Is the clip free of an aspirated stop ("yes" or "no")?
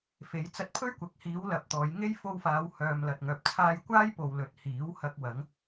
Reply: no